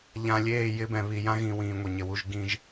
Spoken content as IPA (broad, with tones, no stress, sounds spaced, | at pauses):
ʎ ã˨ lʲ eː˦˨ j ɪ˦ b ɛ̃˨ β i˨ j ã˦ ɣ ĩ˨ w ĩː˨ ŋʷ e˨ ɲ ɪ˨ w u˦ ʒ ɡ ĩ˦ ʒ